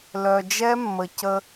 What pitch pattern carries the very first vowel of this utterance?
low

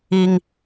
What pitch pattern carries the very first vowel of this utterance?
high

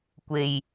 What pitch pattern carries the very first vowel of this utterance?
low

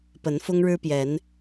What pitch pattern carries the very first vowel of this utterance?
rising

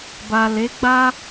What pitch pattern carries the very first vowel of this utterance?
low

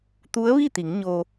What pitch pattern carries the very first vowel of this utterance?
rising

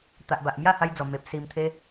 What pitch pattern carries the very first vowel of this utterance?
low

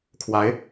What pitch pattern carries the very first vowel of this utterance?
rising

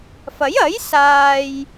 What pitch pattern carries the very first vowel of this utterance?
rising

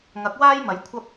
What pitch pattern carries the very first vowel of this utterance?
rising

